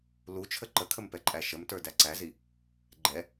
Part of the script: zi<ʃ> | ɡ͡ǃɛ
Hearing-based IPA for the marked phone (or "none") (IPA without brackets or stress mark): none